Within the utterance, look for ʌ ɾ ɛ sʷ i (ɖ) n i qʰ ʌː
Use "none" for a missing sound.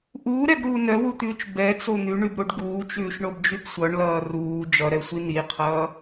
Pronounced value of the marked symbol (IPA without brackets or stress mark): none